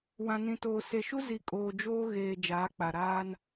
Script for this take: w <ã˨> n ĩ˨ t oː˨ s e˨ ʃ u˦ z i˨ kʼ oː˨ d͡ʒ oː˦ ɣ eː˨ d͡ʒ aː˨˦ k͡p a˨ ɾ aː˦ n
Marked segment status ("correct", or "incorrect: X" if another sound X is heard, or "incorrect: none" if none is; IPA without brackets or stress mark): correct